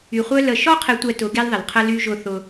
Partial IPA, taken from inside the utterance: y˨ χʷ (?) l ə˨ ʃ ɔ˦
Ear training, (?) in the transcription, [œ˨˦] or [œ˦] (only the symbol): œ˦